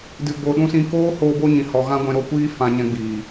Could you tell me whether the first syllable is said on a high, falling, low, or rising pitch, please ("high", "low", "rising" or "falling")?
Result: low